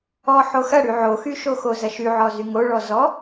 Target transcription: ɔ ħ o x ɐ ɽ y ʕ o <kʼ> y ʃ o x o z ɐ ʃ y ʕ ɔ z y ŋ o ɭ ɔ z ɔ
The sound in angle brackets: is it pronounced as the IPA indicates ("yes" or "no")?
no